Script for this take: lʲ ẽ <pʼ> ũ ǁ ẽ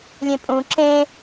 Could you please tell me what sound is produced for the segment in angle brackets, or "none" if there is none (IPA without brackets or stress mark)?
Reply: pʼ